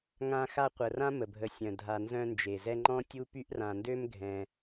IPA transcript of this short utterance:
ŋã˦xa˦ qʷə˨rã˥ mə˩bʱə˨sʲœ̃˩ dʱa˨nzœ̃˦ nd͡ʒe˩ zɛ˦ŋ͡ǃɔ̃˥ tʲu˥py˥ʔ rã˨ndø˥m ɡʱɛ̃˨

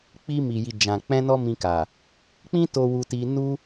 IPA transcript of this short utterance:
k͡pi˧ mi˨ji˨ d͡ʒã˨k͡pɛ̃˧ nɔ˦mĩ˧ka˨ | k͡pĩ˦to˧ wu˧ti˧ nu˦

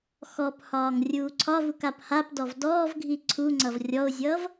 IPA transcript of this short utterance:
xɔphɒːŋ rʲuːǀʰɒvuk aphapdɔv dɔːvɡʱi ǀʰuŋ͡ǀʌv rʲɔʊ̯zʲʌːv

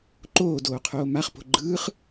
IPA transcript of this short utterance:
ǃoːdoːqʰoː maχpo̤ ɡ͡ǃɯːχ

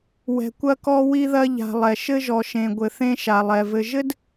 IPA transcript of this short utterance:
wɛ̤˨kʷɐ˧kɔ˧ wi˧ðɐ˧ʎa̤˨lˠɛ˨ ʃɘ˧ʒɔ˨ ʃẽ˨ɡʷɘ˨ θẽ˧ʃa˨lˠɛ˨ vɘ˨ʒɘ˦d

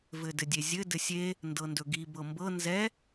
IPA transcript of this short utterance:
vɘdɘdʲezʲɘ dɘsʲe | ndɤndɵɡi bɤmbɤ nzɛ

